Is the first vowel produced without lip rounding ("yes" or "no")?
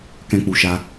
yes